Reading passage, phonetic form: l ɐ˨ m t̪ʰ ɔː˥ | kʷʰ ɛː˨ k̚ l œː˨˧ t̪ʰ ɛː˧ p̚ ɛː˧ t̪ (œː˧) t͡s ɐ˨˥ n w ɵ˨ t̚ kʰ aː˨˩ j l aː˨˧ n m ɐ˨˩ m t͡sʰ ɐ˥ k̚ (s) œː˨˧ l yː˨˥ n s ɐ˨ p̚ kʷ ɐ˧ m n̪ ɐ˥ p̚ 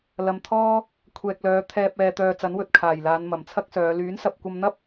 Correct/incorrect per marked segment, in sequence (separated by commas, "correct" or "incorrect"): correct, correct